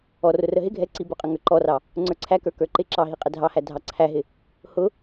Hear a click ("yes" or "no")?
yes